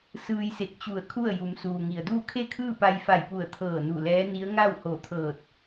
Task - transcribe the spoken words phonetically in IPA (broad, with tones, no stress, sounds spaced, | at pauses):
s ɯː˧ j s e˧˩ k̚ t͡ɕ u˧˩ ə̯ kʰ u˥˨ ə̯ j u˩˧ m s uː˩ ŋ i˩ ə̯ d uː˥˨ kʰ e˥˨ kʰ ɯː˥˨ p a˧ j f a˧˩ j p u˧˩ ə̯ t̪ʰ ɤː˧˩ n u˧˩ l ɛː˧˥ n i˧˥ ə̯ ŋ a˥˨ w h o˧˩ t̪ʰ ɤː˧˩ t̚